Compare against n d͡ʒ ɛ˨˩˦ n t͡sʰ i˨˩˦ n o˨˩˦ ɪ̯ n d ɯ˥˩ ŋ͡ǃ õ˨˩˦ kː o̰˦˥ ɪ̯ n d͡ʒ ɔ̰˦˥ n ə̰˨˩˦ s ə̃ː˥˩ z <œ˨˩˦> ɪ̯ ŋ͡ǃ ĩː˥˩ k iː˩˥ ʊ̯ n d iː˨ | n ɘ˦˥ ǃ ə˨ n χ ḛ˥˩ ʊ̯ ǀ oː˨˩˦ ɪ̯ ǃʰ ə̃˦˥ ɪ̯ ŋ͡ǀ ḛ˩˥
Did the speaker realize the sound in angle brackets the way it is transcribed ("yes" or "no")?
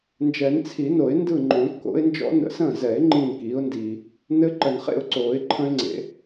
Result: no